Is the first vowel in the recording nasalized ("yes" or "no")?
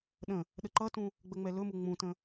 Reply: yes